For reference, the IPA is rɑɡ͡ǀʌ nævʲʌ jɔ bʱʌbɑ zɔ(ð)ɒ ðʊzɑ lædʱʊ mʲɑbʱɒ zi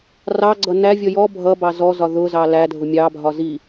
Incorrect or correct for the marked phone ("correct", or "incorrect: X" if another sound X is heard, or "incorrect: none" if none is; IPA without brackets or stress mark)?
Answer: incorrect: z